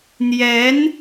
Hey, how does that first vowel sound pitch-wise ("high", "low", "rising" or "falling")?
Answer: rising